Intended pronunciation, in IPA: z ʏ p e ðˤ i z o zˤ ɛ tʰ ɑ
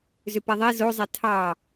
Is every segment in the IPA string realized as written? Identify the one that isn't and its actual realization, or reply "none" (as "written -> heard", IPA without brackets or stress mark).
none